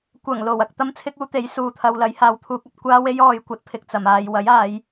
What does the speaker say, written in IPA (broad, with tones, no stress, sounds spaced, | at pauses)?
kʷ ɐ˨˩ ŋ l o˨˩ w ɐ˧ k̚ t̪ ɐ˥ m t͡sʰ ɪ˥ k̚ uː˥ t̪ e˨˥ j s uː˨ t̪ʰ ɐ˧ w l ɐ˨˥ j h aː˨˧ w t̪ʰ uː˧ k̚ ɐ˨ t̚ kʷ aː˥ w e˥ j ɔː˧ j kʷ ɐ˨˥ t̚ pʰ ɪ˨ k̚ t͡s ɐ˨˩ m aː˨ j w ɐ˨˥ j aː˨˧ j